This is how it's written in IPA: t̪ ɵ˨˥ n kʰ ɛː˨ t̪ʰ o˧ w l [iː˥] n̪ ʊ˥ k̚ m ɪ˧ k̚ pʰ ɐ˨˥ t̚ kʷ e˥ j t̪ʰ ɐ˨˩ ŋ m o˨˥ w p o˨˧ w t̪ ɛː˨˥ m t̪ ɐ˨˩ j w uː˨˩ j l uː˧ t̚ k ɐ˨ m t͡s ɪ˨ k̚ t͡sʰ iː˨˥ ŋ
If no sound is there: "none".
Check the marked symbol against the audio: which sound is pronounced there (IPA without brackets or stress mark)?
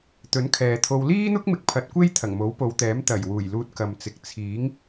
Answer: iː˥